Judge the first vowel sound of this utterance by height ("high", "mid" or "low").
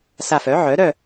low